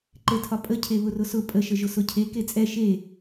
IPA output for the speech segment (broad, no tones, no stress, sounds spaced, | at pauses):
ǃ e tʰ ɒ pʼ ə cʰ e β ʊ r ʊ s ʊ pʼ ə ʃ ə ʒ ʊ s ʊ cʰ e k e t͡sʼ ɛ ʃ e